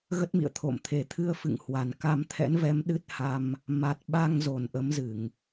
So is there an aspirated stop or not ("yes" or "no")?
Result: yes